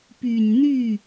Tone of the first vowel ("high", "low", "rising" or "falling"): low